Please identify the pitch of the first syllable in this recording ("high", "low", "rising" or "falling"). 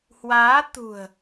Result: rising